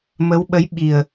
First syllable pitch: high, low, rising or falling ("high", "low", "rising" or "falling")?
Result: rising